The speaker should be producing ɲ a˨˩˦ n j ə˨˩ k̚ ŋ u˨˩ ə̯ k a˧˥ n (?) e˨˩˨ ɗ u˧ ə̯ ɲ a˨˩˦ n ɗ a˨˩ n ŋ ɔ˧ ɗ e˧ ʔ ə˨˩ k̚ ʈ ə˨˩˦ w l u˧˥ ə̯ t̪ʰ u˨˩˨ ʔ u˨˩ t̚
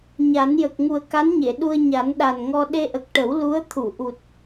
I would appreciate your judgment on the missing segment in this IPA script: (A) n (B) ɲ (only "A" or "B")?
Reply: B